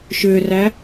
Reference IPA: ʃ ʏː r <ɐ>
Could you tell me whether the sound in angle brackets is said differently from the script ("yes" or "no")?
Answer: yes